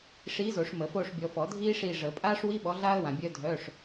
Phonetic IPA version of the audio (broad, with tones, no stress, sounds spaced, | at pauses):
ʂ iː˨˥ z o˨˩˦ ʂ m ə˨˩˦ f oː˦˨ ʂ bʲ ɔ˨ f ɔ˨˩˦ dʱ iː˥ ʂ i˦˨ ʐ ə˨˩˦ pʼ aː˥ ʂ w i˧˥˧ ɓ ɔ˨˥ ɮ aː˥ ə̯ w ã˨ bʲ œ˥ dʱ œː˧˥˧ ʂ